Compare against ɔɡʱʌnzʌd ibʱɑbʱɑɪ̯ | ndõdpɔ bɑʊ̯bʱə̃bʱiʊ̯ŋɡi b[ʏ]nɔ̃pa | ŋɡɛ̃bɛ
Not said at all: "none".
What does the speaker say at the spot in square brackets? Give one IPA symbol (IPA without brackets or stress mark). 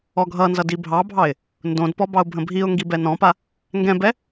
ɛ